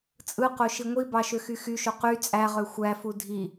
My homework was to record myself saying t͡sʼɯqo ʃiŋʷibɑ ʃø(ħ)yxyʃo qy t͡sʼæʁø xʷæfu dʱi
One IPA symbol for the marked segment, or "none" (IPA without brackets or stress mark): x